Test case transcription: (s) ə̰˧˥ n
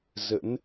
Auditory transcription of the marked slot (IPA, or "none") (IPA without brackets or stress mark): z